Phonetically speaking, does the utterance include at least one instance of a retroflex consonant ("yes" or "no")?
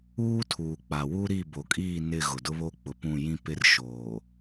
no